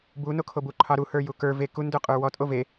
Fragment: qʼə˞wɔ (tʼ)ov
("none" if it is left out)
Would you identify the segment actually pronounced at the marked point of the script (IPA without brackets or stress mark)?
tʼ